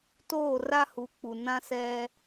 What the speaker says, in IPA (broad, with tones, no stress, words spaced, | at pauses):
toː˦˨ra˦hu˨˦ k͡pu˨nã˦sɛ˦